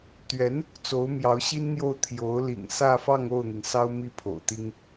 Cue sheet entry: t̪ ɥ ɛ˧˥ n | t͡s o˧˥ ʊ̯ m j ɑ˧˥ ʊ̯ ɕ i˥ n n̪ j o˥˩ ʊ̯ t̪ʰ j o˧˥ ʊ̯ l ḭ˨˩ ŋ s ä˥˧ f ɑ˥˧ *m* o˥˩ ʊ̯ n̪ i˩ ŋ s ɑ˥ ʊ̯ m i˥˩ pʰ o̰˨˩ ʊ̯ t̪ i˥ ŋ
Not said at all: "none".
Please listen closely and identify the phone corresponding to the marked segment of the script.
ŋ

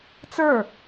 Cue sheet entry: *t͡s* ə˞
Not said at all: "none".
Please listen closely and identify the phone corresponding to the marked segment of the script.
t͡s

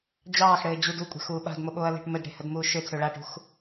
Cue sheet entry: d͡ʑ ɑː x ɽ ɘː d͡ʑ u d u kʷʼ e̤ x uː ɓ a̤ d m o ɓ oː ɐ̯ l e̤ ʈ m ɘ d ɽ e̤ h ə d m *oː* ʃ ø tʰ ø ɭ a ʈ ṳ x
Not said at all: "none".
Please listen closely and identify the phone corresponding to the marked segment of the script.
uː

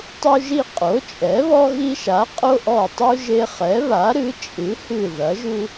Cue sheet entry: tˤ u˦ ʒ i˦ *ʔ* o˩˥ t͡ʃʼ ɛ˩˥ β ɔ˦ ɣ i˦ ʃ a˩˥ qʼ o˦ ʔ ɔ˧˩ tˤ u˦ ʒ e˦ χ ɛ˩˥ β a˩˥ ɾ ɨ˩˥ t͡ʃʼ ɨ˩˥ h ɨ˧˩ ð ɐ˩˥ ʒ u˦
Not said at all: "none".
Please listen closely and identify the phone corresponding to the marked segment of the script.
qʼ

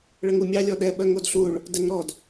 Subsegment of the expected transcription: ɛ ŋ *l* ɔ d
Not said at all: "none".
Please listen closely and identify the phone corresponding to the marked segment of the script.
ɾ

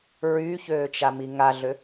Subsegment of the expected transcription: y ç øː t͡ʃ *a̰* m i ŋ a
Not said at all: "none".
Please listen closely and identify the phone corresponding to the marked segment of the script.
a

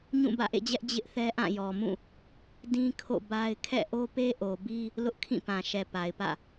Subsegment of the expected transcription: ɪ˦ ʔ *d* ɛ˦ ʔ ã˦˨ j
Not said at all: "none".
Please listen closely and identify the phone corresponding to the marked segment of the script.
θ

